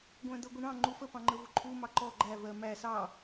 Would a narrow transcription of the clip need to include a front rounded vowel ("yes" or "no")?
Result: no